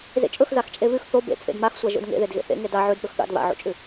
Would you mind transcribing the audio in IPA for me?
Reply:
z ḛ t͡ʃʼ ɵ x z a x t͡ʃʼ e β ʉ x θ o b ḛ t͡sʼ ḛ d m a x sʷ a ʒ o̰ d ŋ ḛ ð e d ɣ ḛ θ ḛ ŋ e d a ʕ ʉ d ɓ ɵ x ɠ a̰ d β a̰ ʕ o̰ t͡ʃʼ ʉ

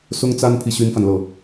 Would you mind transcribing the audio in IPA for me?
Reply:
s ʊ˥ ŋ t͡s a˥ n pʰ i˨ ɕ y˥ n f a˨ n l ɤ˥˩

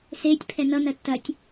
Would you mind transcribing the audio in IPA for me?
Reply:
s e tʲ pʰ ɛ n ʌ n ɐ tː ɐ tʲ

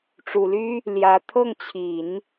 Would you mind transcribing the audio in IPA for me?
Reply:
ʈ͡ʂ u˨˩ l y˥ | l j ä˧˥ t̪ʰ ɤ˥˩ ŋ t͡ɕʰ i˨˩˦ n

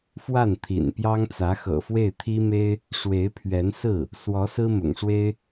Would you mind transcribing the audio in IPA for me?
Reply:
f w a˥˩ n t̪ʰ ḭ˨˩ n p j ɑ˥ ŋ t͡s ä˧˥ x ɤ̰˨˩ f w e˥˩ ɪ̯ t̪ʰ i˥ m e˥ ɪ̯ | ʂ w e˧˥ ɪ̯ pʰ ɥ ɛ˧˥ n s ɹ̩˥˩ | s w ɔ˧˥ s ɹ̩˥ m ʊ̰˨˩ ŋ ʂ w e˥ ɪ̯

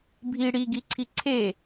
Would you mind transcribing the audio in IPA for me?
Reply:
bʱ i ɽ i ɡ i ǀʰ i ǀʰ e

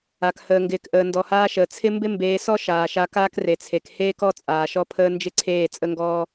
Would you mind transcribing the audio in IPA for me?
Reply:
a˨ k h əː˨ ŋ ɡ ɪː˨ k ʔ əː˨ n d ɔ˨ h aː˧ ʃ əː˨ t͡sʰ ɪ˦ m b ɪ˦ m b eː˨˦ s ɔ˦ ʃ aː˨ ʃ a˧ k aː˦ k r e˨ t͡sʰ e˨ k h eː˦ k ɔ˦ t͡sʼ aː˨ ʃ ɔ˦ pʰ əː˦ n d͡ʒ ɪ˦ ǀʰ eː˦˨ t͡sʼ ə˦ ŋ ɡ ɔː˦

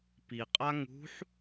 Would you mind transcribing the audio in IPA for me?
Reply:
p i qʼ a ŋ ṳ ħ

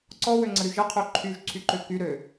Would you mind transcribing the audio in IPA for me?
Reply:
ǀ ɔ w ø ŋ͡ǀ ə ɾ y ʒ ə qʰ ø ǃʰ y ʒ ǀʰ y ǃ ø k y ɾ ø

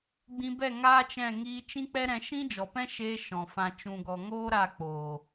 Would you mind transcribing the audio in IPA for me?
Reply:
ɡ͡b ĩ˧ b ɛ˦˨ ŋ aː˦ t͡ʃ ɛ̃˦˨ ŋ iː˧ t͡ʃ ĩ˦ k͡p ɛ˦ ɾ ɛ̃˧ ʃ ĩ˦ d͡ʒ ɔ˨ p ɛ̃˦ ʃ eː˧ ʃ ɔ̃˨ f ã˨ t͡ʃ ũ˨ ɡ ɔ˨ ŋ oː˦ ɾ a˦˨ k͡p oː˨

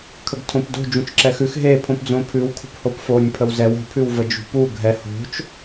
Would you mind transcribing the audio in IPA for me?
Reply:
kʰ ə ɡ tʰ õ p d o̤ d͡ʒ ũ t͡ʃ ǁ ɛ x ʉ x ɦ e pʰ õ p d͡z õ pʰ ʉ w kʰ ṳ p h o p f o nʲ pʰ ə w z ɛ w o̤ pʰ ʉ w v ə d͡ʒ ṳ p u ɡʱ ɛ h o̤ t͡ʃ

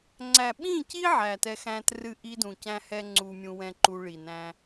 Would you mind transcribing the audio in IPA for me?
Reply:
ŋ͡ǀ æ˨ ɓ ĩ˦˨ c i˦ ʕ æ˨ t ɛ˧ x æ̃˦ t r ɨ˦˨ ʔ i˦ d ũ˨ c æ̃˦ h ɛ˦ ŋ͡ǀ u˧ mʲ ũ˧ w ɛ̃˦ ǃ u˧ ɭ i˨ n æ̃˧

